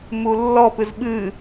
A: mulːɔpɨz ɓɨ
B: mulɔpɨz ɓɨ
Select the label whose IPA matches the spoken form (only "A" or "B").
A